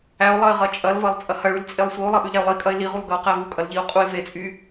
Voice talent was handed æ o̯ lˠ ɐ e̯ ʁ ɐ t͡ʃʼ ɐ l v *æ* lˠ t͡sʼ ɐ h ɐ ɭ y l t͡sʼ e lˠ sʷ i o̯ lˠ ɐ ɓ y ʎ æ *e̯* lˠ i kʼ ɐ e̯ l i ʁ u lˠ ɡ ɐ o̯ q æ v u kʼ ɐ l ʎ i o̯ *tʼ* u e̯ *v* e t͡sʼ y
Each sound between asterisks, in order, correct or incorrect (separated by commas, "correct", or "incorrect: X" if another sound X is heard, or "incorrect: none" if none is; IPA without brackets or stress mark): incorrect: ɐ, incorrect: o̯, incorrect: qʼ, correct